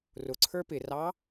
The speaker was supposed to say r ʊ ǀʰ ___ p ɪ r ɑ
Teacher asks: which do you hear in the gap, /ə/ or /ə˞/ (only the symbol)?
ə˞